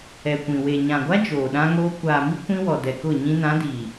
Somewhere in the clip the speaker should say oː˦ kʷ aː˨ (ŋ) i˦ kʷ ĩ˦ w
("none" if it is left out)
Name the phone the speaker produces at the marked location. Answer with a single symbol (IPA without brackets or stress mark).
m